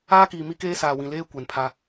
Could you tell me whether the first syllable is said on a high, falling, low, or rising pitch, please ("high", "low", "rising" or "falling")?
high